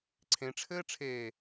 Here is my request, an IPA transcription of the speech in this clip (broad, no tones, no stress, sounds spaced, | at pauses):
ǀʰ ẽ ʈ͡ʂʰ ɘː ʈ͡ʂʰ eː